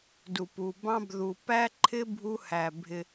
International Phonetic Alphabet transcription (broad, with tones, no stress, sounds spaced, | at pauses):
d u˨ p u˨ b ɑ̃˦ b ð u˨ p æ˦ ǃʰ ɪ˦ bʱ u˦ h æ˨ bʱ ɪ˦